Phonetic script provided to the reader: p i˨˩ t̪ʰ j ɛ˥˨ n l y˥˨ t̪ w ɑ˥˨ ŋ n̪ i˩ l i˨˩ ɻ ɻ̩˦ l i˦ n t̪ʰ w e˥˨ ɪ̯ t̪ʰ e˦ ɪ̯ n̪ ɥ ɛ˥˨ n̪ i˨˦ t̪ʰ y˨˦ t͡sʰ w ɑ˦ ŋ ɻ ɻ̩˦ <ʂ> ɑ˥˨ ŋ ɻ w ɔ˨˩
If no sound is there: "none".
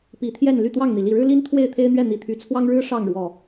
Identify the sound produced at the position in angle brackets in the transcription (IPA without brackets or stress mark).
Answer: ʂ